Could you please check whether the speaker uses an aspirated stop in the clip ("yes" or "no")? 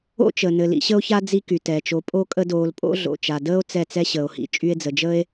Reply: no